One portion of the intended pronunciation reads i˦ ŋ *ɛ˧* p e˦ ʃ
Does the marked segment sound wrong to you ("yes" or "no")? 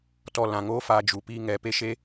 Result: no